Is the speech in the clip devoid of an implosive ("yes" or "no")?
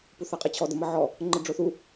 yes